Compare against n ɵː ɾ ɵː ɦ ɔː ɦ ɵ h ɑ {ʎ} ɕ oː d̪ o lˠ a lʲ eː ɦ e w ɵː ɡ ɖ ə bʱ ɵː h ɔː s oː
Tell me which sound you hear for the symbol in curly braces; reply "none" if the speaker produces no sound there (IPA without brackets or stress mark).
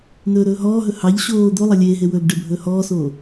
ʎ